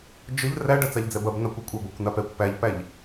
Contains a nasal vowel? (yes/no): no